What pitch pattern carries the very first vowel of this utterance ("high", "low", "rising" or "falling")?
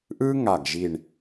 high